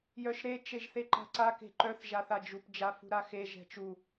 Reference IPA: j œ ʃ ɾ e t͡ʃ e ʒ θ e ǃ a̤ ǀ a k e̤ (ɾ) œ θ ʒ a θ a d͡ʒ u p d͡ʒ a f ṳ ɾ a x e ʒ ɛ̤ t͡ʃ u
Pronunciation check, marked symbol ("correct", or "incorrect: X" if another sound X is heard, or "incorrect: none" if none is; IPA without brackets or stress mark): incorrect: ǃ